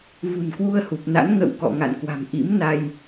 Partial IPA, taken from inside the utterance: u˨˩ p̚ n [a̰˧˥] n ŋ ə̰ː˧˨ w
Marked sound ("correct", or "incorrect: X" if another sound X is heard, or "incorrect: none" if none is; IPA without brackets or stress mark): correct